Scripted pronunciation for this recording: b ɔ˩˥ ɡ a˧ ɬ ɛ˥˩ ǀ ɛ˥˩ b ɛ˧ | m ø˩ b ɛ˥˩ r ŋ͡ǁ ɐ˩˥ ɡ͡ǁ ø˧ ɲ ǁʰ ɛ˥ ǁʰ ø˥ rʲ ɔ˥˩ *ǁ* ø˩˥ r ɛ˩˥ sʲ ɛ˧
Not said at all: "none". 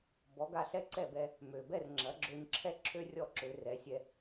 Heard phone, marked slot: ǁ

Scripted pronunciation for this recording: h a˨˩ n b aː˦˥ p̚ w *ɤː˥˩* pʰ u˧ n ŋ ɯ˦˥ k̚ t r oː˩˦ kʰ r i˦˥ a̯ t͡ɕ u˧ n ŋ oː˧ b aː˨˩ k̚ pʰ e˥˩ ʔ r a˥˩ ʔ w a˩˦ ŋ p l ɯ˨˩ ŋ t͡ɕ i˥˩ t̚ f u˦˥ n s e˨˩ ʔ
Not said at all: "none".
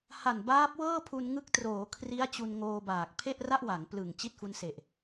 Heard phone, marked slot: ɤː˥˩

